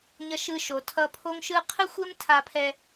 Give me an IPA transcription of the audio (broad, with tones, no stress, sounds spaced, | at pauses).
ɲ ʌ˧ ʃ ɯ˧ ʃ o˩ tʰ ʌ˧ pʰ o˥ ŋ ʃ ɯ˥ qʰ ɯ˥ xʷ e˥ m tʰ a˧ pʰ ɛ˧